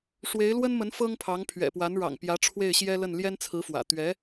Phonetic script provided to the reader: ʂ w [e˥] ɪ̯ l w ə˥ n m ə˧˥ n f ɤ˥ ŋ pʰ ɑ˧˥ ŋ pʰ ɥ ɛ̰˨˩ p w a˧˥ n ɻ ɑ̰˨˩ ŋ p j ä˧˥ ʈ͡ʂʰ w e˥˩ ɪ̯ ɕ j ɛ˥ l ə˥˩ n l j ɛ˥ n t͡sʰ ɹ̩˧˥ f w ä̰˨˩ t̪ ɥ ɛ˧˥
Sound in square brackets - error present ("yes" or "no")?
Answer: yes